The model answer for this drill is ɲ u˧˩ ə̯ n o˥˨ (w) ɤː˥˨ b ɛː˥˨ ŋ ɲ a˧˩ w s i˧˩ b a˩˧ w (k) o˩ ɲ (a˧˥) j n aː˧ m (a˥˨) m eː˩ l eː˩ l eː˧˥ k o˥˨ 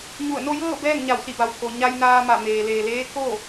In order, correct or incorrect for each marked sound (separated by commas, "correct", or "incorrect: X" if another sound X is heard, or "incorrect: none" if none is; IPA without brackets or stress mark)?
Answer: incorrect: j, correct, incorrect: a˧, incorrect: a˧˩